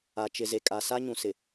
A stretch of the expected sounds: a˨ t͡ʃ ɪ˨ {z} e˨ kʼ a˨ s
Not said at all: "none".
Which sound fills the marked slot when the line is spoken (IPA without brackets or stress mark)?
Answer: z